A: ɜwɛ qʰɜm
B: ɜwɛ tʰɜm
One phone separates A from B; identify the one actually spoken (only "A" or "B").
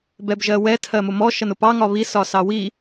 B